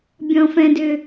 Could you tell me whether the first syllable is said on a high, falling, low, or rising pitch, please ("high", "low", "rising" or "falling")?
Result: low